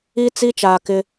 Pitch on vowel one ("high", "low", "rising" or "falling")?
high